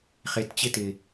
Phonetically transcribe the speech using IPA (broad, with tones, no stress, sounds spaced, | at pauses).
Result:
χ e˨ t t͡ɕ ɪ˦ t ɪ˨